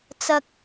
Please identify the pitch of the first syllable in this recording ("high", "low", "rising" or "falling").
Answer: high